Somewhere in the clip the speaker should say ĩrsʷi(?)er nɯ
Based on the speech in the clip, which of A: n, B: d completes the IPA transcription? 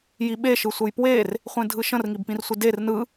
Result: B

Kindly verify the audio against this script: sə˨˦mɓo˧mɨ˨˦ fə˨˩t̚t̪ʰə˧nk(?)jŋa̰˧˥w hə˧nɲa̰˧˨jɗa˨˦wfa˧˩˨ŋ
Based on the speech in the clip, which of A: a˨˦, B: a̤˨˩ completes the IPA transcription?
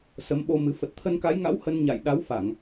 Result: A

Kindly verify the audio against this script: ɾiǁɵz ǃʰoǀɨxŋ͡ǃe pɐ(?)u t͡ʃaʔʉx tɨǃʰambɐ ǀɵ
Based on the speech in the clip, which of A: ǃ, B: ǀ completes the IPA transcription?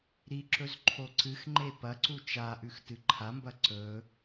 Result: B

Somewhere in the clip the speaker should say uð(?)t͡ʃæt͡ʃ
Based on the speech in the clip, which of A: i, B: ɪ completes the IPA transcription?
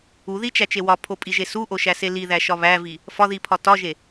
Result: A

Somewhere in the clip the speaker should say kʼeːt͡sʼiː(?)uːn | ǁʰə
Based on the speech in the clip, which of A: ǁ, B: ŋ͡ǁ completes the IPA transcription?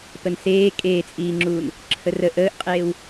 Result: B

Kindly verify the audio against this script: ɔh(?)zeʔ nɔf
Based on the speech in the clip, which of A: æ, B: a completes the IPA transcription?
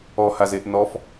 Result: B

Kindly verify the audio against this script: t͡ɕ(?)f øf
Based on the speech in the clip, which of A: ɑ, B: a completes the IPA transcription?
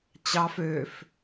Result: A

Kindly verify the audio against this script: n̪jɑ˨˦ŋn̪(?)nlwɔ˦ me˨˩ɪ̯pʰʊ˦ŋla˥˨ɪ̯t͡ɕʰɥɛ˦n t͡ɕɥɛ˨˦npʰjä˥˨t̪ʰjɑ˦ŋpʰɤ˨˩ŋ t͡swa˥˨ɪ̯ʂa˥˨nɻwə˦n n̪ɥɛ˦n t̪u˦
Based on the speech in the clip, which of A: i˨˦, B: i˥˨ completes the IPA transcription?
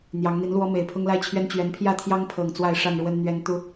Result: A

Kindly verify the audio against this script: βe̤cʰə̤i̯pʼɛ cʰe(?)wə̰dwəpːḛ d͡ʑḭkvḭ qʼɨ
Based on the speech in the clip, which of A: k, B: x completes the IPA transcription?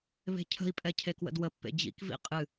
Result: A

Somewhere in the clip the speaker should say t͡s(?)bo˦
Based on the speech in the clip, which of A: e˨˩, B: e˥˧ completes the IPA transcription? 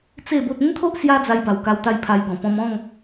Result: B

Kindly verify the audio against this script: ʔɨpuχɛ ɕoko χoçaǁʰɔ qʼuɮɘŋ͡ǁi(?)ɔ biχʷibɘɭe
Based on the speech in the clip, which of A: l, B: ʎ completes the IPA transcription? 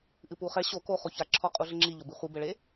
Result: B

